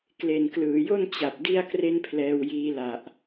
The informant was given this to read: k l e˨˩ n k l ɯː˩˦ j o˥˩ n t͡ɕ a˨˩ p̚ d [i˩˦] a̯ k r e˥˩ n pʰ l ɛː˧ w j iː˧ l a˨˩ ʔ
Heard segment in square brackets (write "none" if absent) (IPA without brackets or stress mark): i˥˩